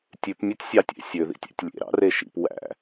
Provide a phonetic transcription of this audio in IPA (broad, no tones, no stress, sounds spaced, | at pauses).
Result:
tʲ ʉ p mʲ e tʲ sʲ ɑ tʲ ḛ sʲ ø ð ḭ tʲ æ̰ tʲ lʲ ḛ ɾ ɑ̰ r e ʃ ḭ p w æ̰